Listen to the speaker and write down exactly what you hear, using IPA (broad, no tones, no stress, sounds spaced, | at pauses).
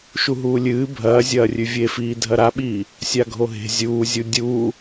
ʃ u ɦ uː lʲ ɨː bʱ ɐː zʲ ɐː rʲ ʉ vʲ e f iː dʱ ɐ ɾ a ɓ iː | sʲ a ɡʱ o ɦ e̤ zʲ uː zʲ u dʲ uː